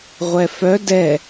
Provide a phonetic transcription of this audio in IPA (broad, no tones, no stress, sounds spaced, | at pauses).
ʁʷ ɛ f œ d ɛ